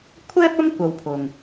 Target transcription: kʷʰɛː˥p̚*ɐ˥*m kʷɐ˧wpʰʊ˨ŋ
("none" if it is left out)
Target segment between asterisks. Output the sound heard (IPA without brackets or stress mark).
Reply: ɐ˥